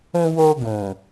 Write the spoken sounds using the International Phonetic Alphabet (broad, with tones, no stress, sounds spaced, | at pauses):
ũ˧ w o˧ ɡ ũ˨